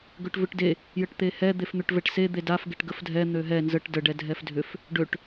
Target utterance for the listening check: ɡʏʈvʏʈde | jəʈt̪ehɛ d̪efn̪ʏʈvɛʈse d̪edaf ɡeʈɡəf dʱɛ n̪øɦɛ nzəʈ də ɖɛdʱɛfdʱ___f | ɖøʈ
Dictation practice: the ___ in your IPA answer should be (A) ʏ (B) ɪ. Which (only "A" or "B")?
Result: A